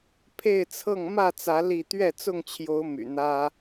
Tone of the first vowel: falling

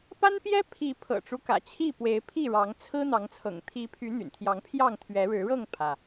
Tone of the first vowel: high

